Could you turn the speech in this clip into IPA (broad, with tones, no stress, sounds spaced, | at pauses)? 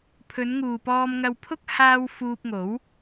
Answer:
pʰ ɵ˨˧ n ŋ uː˨ p ɔː˧ m ŋ ɐ˧ w pʰ ʊ˥ k̚ h aː˧ w f uː˧ p̚ ŋ o˨˥ w